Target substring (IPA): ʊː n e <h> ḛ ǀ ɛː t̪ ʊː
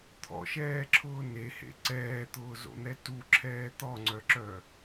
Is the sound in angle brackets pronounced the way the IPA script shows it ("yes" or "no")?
yes